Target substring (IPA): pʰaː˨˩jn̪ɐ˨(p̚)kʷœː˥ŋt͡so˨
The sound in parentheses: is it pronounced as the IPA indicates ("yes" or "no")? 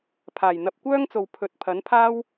yes